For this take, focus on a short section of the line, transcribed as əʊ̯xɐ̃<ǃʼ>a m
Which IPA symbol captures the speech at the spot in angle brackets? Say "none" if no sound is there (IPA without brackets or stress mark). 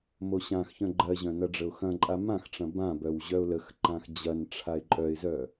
ǃʼ